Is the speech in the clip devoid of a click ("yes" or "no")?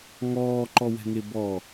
no